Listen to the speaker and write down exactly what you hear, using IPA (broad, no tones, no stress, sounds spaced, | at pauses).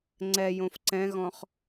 ŋ͡ǀ ɛ j õ f ǀ ɛ̃ ɣ ɔ̃ χ